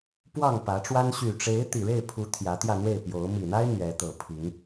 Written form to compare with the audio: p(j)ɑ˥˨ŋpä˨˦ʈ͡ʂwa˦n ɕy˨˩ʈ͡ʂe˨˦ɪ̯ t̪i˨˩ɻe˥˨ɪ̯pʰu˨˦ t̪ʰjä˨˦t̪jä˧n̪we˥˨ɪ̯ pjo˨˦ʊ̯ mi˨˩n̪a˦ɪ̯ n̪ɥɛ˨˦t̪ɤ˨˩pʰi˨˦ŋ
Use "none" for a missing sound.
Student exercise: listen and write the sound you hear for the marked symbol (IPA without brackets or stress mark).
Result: w